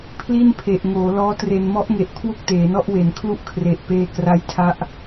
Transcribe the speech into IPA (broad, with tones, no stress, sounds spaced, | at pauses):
pʰ l i˥˩ n pʰ e˨˩ ʔ ŋ oː˩˦ l ɔː˦˥ t r e˧ n m ɔ˦˥ ʔ ŋ e˨˩ ʔ kʰ w o˥˩ k̚ t eː˩˦ n ɔ˥˩ ʔ w e˩˦ n kʰ l u˥˩ ʔ kʰ r e˨˩ ʔ p eː˧ k r a˦˥ j tʰ a˦˥ ʔ